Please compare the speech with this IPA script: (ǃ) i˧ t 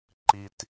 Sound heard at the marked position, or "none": ǃ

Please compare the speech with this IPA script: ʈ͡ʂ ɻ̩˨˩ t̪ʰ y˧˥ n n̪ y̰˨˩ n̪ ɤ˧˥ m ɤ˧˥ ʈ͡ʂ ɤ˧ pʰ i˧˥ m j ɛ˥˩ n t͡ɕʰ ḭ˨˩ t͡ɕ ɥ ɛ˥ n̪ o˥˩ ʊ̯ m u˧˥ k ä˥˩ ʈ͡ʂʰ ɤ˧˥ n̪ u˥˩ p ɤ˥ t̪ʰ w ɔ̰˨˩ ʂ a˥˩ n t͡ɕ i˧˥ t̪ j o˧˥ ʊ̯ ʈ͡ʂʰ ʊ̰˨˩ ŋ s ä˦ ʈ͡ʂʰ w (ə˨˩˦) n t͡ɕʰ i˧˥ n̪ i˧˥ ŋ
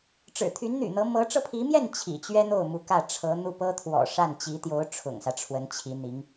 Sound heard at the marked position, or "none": ə˧˥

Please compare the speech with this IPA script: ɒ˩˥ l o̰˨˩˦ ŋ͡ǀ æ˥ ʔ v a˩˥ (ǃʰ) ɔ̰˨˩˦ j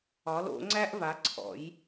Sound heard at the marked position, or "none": ǀʰ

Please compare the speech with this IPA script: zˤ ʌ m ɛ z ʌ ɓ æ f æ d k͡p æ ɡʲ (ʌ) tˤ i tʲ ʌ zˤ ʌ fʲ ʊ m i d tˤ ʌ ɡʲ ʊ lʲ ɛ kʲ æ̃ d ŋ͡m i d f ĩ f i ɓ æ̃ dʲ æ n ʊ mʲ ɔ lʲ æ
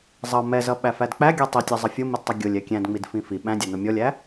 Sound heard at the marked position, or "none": ɔ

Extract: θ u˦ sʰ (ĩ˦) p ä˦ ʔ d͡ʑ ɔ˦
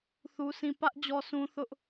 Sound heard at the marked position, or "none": ĩ˦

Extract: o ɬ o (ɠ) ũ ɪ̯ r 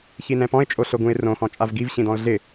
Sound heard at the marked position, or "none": ɡ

